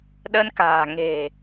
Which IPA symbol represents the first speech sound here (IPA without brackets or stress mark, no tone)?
ɗ